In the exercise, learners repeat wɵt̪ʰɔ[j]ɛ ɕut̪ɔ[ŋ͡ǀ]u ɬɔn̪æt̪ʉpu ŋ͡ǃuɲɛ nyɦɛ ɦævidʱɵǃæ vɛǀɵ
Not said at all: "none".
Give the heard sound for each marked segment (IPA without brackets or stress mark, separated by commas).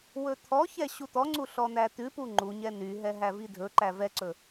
ç, ŋ͡ǀ